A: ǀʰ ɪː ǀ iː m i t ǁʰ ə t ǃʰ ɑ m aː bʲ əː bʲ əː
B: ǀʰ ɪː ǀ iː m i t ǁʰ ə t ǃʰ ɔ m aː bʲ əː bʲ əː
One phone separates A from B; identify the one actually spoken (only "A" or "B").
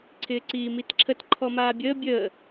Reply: B